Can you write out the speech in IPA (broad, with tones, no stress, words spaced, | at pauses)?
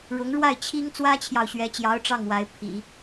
ɻʊ˧˥ŋɻwa˥˩ɪ̯t͡ɕʰi˥ŋ t͡swä˥t͡ɕʰjɑ˨ʊ̯ɕɥɛ˧˥t͡ɕjɑ˧˥ʊ̯ ʈ͡ʂɑ˥˩ŋwa˧˥ɪ̯pʰḭ˨˩˦